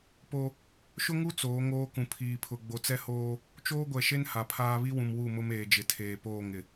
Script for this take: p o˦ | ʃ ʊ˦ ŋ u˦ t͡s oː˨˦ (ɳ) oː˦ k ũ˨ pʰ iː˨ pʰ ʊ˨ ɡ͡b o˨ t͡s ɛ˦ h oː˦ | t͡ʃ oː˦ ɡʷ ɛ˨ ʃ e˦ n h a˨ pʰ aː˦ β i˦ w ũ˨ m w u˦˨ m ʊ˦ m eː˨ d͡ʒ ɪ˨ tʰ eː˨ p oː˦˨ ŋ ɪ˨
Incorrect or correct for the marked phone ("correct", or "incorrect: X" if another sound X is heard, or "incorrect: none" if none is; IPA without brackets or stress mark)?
incorrect: ŋ